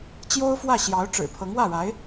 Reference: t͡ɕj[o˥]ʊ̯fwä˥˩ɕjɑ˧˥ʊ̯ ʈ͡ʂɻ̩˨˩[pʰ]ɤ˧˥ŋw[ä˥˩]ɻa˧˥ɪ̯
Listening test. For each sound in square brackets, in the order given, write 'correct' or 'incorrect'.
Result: correct, correct, correct

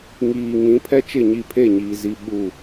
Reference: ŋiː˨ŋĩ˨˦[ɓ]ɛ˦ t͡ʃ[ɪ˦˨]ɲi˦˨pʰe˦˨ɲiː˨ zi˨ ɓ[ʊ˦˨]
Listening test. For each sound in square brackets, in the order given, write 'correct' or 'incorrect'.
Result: incorrect: pʰ, correct, incorrect: u˦˨

